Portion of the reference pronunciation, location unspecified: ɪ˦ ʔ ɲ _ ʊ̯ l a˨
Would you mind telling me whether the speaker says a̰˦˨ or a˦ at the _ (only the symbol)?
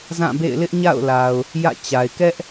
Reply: a̰˦˨